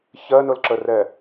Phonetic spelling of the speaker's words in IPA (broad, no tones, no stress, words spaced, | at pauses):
çɜnʊlǁərɛ